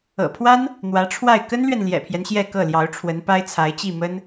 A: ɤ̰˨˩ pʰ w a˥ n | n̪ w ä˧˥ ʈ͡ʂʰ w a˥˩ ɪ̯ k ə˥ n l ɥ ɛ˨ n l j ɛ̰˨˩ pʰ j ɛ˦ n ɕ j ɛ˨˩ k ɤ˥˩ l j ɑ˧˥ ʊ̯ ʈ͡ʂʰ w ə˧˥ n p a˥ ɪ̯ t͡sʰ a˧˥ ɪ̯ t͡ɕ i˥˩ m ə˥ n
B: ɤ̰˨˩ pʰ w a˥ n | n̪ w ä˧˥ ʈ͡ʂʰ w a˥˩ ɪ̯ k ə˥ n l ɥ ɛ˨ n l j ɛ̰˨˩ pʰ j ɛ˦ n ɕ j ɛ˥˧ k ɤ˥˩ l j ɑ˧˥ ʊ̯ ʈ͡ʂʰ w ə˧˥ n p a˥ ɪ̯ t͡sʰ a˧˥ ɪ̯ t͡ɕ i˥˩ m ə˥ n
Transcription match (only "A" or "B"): B